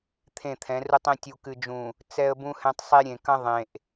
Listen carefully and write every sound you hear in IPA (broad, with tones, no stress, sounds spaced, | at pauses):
t̪ʰ ẽ˦˨ t̪ʰ ɛ̃˨˦ r u˦ tˤ ẽ˦ tʲ u˨ k ɨ˨ d͡ʒ ũ˨ | t͡s ɛ˦ ə̯ b ũ˦ h ɛ̃˦ tˤ sˤ e˦ ɾʲ ẽ˨ k ɐ̃˦ ðˤ ẽ˨ ʔ